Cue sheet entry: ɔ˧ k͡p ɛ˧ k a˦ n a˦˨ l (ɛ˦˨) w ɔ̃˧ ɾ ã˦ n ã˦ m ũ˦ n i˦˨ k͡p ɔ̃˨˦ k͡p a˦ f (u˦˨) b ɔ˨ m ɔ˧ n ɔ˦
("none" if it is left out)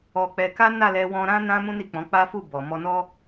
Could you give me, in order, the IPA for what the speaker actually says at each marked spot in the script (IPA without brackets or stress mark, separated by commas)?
ɛ˧, u˦˨